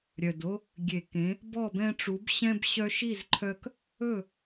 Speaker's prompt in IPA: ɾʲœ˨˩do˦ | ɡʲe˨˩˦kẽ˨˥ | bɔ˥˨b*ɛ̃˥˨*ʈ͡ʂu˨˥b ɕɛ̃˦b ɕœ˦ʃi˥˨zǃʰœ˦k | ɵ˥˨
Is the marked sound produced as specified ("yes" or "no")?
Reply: no